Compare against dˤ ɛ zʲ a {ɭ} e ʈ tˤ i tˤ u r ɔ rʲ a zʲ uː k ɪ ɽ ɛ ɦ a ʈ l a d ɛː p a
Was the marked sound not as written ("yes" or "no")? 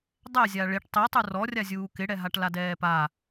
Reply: no